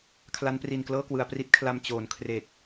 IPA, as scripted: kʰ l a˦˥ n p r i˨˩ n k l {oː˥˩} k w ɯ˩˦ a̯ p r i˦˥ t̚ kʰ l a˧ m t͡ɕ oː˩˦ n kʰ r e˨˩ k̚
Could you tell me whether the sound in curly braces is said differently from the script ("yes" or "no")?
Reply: yes